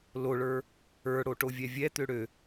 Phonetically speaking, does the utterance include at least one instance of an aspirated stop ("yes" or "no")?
no